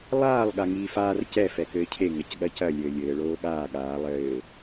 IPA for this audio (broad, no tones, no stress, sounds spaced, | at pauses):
lˠ aː lˠ ɠ a ŋ iː f aː r c ɛ f ɛ k ɘː cʰ e ŋ ɐ c ɠ ɐ c ɐ lʲ ɘː lʲ ɘː ɭ oː ɠ aː ɠ aː lˠ ɘː